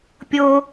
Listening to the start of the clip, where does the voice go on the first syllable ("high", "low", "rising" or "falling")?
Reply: high